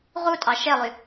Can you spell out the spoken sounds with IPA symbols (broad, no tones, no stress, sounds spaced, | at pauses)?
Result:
ʁ u tʼ ɑ ʃ e lˠ y